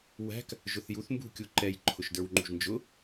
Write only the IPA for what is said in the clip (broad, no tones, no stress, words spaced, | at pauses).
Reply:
wæ̤k | ʒʊθjuθ mbṳ kʲuǃɛj ǃʰʊʃdə˞wŋ͡ǃṳʒnd͡ʒʊ